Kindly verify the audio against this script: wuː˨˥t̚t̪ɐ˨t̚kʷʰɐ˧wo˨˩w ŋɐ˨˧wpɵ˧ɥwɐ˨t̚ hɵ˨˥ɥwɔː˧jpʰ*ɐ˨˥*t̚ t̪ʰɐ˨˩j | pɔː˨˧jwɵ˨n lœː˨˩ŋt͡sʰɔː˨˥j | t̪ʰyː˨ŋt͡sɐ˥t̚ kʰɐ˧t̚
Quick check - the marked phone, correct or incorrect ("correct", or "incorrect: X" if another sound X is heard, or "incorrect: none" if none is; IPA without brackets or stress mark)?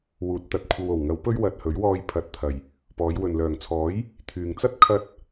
correct